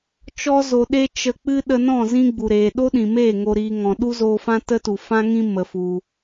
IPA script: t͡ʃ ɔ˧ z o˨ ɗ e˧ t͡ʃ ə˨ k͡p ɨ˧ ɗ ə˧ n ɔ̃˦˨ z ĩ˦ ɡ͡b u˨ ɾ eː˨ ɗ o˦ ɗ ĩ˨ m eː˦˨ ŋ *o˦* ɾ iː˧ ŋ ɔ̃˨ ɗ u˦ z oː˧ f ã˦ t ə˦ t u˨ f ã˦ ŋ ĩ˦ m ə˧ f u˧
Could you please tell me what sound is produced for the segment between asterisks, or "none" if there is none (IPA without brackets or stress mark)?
o˧